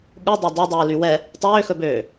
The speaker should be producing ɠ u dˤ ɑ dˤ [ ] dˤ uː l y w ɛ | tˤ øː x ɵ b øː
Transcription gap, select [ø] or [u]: ø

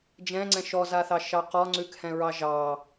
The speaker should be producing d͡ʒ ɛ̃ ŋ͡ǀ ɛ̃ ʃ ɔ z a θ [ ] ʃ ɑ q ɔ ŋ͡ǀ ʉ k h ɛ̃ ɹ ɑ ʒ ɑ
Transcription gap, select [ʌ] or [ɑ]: ɑ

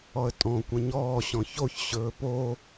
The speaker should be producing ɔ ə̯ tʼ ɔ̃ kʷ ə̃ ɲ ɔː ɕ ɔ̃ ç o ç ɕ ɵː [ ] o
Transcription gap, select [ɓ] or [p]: p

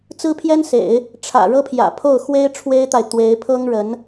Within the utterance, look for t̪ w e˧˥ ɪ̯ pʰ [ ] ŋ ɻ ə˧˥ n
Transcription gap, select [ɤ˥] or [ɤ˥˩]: ɤ˥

